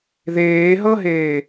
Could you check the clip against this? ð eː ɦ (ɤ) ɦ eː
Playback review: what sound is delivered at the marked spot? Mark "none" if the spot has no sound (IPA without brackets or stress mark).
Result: ɤ